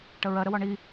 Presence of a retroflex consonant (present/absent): present